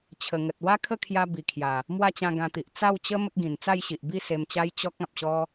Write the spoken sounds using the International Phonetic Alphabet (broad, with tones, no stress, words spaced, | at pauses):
t͡ɕʰə˨˩ŋə˨t̚ wa˦kʰə˥˧kʰja˧ bi˨˩kʰja˨˩ | mwa˥˧t͡ɕã˧ ɡã˧t̪i˨ʔ t͡sa˥˧wt͡ɕə˦ mə˦k̚ɡĩ˨˩n t͡sa˥˧jɕi˨ʔbi˥˧ se˧mt͡ɕa˦j t͡ɕɔ˦k̚ ã˨p̚ɕɔ˦